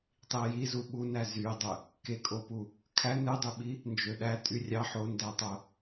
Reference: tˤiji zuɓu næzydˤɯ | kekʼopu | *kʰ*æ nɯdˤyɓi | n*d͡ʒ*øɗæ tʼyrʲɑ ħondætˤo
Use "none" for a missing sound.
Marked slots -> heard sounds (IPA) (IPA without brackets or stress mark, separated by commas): kʰ, d͡ʒ